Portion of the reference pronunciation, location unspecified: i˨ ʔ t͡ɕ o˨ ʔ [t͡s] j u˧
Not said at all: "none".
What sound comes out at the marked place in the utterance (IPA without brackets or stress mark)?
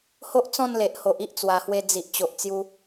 t͡s